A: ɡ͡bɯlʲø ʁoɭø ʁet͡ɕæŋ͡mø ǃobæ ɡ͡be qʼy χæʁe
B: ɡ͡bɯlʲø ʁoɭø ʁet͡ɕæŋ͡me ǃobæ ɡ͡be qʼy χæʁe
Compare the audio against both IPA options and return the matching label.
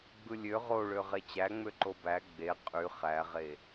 A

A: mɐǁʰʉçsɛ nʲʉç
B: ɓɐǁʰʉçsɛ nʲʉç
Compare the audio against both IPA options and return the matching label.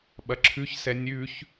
B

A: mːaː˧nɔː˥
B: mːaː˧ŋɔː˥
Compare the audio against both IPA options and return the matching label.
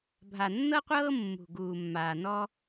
A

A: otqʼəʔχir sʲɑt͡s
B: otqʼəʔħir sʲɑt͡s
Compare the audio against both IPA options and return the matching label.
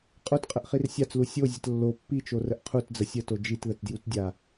A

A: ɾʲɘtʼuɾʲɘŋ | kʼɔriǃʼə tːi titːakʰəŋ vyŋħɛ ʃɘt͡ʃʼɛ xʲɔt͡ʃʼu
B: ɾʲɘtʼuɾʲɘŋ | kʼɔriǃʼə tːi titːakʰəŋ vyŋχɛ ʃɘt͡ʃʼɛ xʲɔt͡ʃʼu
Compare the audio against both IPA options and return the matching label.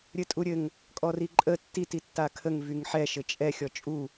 A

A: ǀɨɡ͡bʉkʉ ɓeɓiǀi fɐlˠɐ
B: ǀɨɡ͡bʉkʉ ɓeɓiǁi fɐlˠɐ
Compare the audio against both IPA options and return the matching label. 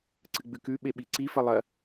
A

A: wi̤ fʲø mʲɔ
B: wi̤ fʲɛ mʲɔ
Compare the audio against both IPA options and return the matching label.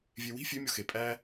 A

